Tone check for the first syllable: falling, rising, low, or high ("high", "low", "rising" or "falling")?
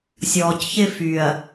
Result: low